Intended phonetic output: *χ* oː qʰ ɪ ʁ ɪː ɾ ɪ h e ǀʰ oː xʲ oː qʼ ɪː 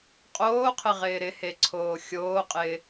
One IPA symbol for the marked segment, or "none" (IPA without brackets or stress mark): qʼ